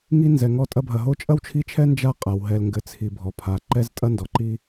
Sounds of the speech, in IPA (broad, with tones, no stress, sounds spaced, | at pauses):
ŋ i˦ n z ɛ˩ ŋ ɔ˦ tʼ ɐ˥ bʱ ɐ˨ ɦ o˦ t͡ʃʼ ɐ˥ w t͡ʃʰ i˦ t͡ʃʰ ɛ˥ n d͡ʒ a˦ qʼ a˩ w ɦ ɛ˨ l ŋ ɡ ɘ˨ t͡sʰ i˨ bʱ ɔ˩ pʰ a˩ ǃ ɛ˥ z tʼ ɐ˥ n d ɔ˩ ǃ i˥